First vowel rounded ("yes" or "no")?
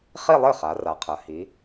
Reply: no